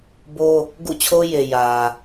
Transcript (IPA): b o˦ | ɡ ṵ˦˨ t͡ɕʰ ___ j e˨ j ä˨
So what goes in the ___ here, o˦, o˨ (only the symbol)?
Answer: o˦